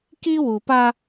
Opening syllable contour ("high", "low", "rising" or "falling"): high